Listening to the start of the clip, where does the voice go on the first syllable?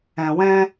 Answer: low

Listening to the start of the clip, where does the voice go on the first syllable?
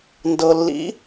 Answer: low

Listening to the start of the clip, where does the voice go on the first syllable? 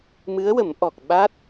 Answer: rising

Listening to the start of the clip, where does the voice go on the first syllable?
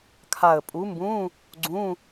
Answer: falling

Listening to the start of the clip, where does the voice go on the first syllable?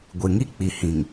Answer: low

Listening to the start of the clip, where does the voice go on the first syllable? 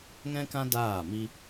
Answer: high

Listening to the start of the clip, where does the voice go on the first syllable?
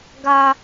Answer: high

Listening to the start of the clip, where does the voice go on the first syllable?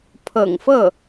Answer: low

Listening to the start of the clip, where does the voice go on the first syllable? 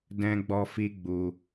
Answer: high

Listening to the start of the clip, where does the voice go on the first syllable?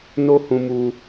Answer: high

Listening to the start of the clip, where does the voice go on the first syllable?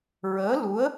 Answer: rising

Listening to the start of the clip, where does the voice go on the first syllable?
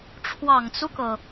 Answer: low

